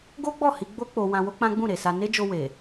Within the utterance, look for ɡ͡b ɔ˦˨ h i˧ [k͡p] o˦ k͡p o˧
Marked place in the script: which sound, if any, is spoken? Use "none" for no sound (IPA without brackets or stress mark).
ɡ͡b